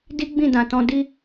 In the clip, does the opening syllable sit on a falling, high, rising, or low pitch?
high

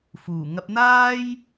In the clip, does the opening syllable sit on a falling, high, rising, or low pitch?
low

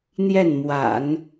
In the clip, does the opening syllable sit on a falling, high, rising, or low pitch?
falling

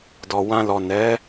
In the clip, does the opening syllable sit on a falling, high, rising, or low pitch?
low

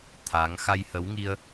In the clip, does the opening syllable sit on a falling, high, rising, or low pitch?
rising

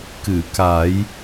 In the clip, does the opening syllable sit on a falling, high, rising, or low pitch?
low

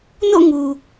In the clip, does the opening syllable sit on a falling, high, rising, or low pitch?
falling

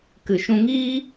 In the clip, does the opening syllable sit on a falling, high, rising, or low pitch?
low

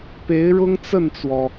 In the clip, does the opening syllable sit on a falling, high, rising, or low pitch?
rising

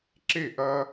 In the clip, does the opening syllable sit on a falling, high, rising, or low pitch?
falling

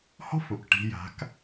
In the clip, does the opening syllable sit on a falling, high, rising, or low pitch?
high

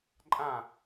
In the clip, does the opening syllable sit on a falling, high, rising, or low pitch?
falling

